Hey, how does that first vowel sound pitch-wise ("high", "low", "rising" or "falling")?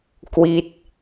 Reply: falling